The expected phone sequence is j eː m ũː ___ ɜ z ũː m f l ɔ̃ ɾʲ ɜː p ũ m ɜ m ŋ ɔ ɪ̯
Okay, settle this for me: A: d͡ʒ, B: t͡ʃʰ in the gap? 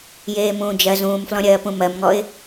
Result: A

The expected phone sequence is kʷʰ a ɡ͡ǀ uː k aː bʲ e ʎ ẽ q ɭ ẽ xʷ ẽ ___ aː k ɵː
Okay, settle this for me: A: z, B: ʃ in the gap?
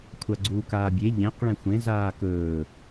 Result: A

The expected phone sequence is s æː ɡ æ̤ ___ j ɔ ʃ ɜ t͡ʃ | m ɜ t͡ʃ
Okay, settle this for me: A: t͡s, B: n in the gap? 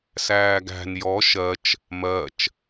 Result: B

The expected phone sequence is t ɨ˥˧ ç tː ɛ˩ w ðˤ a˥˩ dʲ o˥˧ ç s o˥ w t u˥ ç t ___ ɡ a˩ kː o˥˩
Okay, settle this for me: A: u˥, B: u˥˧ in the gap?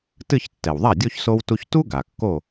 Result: A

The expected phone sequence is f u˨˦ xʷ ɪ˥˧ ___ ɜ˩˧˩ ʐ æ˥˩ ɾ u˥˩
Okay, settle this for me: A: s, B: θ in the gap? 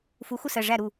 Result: A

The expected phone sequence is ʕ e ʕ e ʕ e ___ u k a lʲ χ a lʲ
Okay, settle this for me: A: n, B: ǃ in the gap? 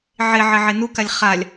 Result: A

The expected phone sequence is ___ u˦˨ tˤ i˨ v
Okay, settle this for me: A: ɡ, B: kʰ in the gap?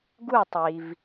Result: A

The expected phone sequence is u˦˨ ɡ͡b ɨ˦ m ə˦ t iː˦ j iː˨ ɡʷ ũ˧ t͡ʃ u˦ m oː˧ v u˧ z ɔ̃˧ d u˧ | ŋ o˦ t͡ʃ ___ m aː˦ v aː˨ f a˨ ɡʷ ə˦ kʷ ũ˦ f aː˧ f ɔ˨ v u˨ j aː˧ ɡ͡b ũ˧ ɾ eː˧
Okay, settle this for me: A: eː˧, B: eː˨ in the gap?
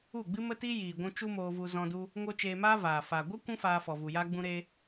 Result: A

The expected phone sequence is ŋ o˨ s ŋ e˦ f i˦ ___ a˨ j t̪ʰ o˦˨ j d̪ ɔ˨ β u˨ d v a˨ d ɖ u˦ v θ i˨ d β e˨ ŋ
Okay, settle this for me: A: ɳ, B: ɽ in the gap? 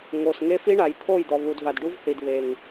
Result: A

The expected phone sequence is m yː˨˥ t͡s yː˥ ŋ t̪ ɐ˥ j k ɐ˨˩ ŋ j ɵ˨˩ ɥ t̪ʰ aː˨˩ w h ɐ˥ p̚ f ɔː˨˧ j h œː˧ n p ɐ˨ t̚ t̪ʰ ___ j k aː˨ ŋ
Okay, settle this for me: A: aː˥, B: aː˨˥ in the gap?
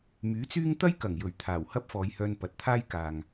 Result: A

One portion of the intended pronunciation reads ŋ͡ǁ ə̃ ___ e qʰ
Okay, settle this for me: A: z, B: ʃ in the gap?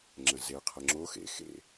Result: A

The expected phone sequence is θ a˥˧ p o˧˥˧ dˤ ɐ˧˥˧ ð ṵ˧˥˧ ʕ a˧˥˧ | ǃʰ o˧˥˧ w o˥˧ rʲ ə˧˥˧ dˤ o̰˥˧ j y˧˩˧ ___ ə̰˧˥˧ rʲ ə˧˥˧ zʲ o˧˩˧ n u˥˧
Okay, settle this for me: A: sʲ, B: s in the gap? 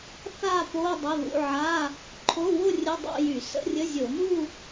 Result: B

